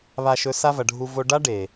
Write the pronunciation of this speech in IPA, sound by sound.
βa˧ʃɵ˧ sa˦vɐ˨ɖʱu˧ vo˧ɖa˦ɖe˨

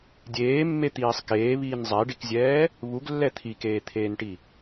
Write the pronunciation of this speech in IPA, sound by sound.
dʲeːmːet̪iːsˤ keːβiːn zˤɛɖikzʲɛː | βuɡlːɛ t̪ʰikeːt̪ʰeːnʈi

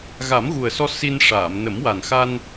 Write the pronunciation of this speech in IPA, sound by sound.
ɣa˨˩˦mɣu˨˩ə̯sɔ˧ si˧n ʂaː˨˩˨mnə˨˩˦mwa˨˩n xa˧n

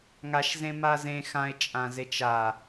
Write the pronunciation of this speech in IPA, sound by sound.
ŋaʃzẽ mazẽ xãɪ̯t͡ʃʼãzet͡ʃ a

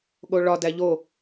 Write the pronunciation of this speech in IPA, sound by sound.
ɠoɭɒ dæʎo

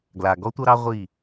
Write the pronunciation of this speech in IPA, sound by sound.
ɡla˨ ɡɔ˦tʷʌ˦ɾɑ˦ ʁʷi˦˨

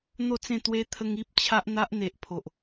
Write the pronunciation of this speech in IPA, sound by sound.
n̪o˥˧t͡sẽ˥˧t̪we˦ t̪ʰə˦ŋi˦p̚ t͡ɕʰa˦ʔn̪a˦ʔ n̪e˨ʔpʰo˨ʔ

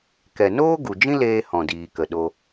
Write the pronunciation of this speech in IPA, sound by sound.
kɛ˨noː˦ ɡu˨d͡ʒĩ˦leː˧ hɔ̃˨diː˨kə˨ ɗo˧

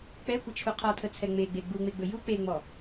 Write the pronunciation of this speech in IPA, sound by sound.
k͡pɛkʷət͡ʃʰu qʰɔtʰət͡sʰɛ ŋ͡meɡ͡be ɡ͡buŋ͡meɡ͡bɵ ju k͡peŋ͡mɔ

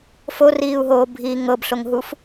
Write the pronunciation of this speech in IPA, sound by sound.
foriːu̯ɦoːbʱiː ŋɤbɬoŋɦuf

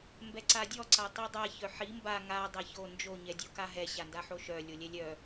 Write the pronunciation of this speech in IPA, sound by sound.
mbɛǀadʲɔ ǀatˤidˤa çœħi mba ŋa dˤaço nd͡ʒo ɲɛdʲokaɦɛ ɕandaħoʃœ lʲolʲɛlʲœ

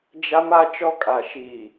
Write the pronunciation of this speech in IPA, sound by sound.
d͡ʒa˦ma˦ t͡ʃɔ˦kʼa˨ ʃiː˨

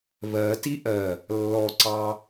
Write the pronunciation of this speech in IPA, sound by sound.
βɜti ʔɜ | lːɔǀɑ

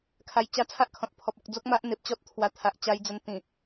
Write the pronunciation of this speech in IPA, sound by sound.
kʰa˧jt͡ɕa˦ t͡sʰa˦ʔkʰɔ̃˨t̚ pʰɔ˨p̚ɔ˨k̚d͡zo˦k̚ma˦ʔ n̪e˨p̚t͡ɕɔ˦t̚ t̪ʰwa˧ t̪ʰa˨ʔt͡ɕa˧jd͡zə˧n t̪ĩ˨˩

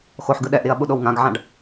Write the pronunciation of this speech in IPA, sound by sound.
xoħɡɯ ɗɛʔɾiɐ̯ɓuɗow ŋãɡʕãɖ

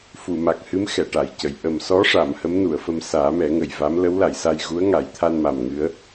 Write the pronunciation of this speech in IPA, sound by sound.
fu˨˩˨ma˨˩k̚hɨ˧˥m xɛ˨˩˨ʈa˨˩˨jcə˨˩˨j ʔə˨˩msɔ˧˥ʂa˨˩˨m hə˧˥mnu˨˩˨ə̯fə˧m saː˨˩˦mɛ˨˩˦ŋə˨˩j va˧˥m lə˧˥wla˨˩˨jsa˧j ɣu˧˥ə̯ŋa˨˩˦jt̪ʰa˧nma˨˩m ŋɨ˧˥ə̯

